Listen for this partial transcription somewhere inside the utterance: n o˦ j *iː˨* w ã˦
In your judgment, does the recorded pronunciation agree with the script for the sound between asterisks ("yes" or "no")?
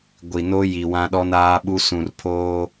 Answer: no